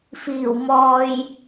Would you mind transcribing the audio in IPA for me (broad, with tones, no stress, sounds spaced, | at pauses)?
f iː˨˩ w m ɔː˨ j